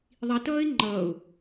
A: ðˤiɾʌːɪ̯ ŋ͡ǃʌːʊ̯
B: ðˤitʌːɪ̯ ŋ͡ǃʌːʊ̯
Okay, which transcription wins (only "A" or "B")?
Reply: B